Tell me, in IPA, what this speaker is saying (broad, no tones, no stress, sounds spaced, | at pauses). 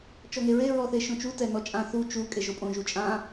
t͡ʃ ɔ ŋ e ɹ e ɹ ɔ θ e ʃ õ t͡ʃ u t ɛ n ɔ t͡ʃʼ ã θ u t͡ʃ u kʼ e ʒ o pʼ õ ʒ u t͡ʃʼ ã